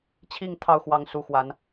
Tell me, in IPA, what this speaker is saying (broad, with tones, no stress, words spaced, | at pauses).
t͡ɕʰi˥˨ŋ t̪ʰɑ˥˨ʊ̯xwɑ˨˦ŋ su˨˦xwa˨˦n